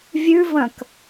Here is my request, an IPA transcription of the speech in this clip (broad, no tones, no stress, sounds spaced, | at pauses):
vʲ ʉ v ɐ̃ k